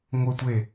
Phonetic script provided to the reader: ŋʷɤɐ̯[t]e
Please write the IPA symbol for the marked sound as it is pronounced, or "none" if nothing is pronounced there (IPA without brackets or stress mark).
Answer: tʷ